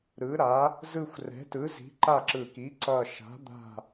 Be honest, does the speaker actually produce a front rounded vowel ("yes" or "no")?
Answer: no